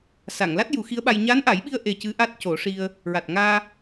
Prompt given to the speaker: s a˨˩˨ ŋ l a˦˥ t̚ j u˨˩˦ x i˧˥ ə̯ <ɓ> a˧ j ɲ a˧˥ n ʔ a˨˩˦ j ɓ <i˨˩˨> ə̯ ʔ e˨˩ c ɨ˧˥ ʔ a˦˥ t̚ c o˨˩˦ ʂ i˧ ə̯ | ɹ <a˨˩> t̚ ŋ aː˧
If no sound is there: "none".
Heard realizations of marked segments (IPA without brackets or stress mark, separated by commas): ɓ, i˧, a˨˩